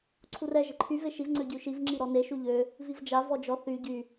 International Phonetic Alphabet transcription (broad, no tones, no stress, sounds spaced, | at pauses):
ǀʰ u r ɛ ʒ ə ǃʰ y v e ʃ i v ŋ͡ǀ ø ɟ y ʃ i v ŋ͡ǁ i ɾ ɔ n e ʃ u ʎ ø | v i v d͡ʒ a v ɔ d͡ʒ ɔ θ y ɟ y